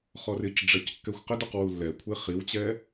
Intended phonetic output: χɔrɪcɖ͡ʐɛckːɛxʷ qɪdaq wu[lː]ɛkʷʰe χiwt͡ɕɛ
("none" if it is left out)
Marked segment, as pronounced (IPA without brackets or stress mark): lː